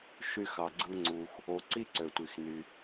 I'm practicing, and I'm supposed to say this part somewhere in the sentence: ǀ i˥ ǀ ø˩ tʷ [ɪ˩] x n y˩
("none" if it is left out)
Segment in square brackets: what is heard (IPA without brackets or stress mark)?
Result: i˩